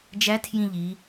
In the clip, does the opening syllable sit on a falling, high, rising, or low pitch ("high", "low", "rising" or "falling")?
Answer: rising